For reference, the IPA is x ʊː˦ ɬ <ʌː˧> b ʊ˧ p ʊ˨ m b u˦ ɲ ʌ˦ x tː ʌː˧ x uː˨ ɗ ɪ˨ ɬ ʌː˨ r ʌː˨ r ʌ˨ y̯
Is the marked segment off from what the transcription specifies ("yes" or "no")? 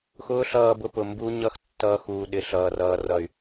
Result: no